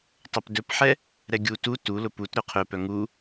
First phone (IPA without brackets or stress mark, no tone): tˤ